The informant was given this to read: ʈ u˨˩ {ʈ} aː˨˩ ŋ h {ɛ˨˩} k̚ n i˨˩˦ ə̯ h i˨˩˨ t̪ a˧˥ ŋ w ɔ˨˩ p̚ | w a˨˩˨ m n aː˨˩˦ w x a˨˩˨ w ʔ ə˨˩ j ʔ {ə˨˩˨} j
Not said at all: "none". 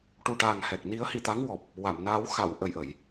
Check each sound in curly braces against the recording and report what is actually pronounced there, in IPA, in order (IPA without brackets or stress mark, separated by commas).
ʈ, ɛ˨˩, ə˨˩˨